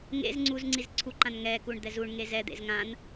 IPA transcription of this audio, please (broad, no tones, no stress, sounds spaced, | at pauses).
ŋ ḛ z ŋ͡ǀ u z ŋ͡ǀ i z ǀʰ u ǃ ã n ŋ ɛ k u ɳ d̪ ɛ z u ɳ ŋ e z ɛ d̪ ḛ z ŋ ã n